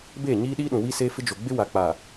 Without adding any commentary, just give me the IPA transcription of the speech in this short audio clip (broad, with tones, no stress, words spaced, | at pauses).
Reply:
beː˦˨ɲiː˦ɗiː˦ɗũ˨ wi˦seː˦fɪ˦d͡ʒo˨ ɡ͡bɪ˦wa˨ k͡pa˨